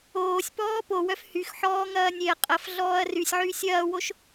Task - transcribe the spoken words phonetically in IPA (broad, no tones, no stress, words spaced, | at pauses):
oːsʲpɔː powœf hyx ħɔːŋɐːnʲeɐ̯ qʼɐf ɮɔːɐ̯rysʲʕy sʲɐːwoʃ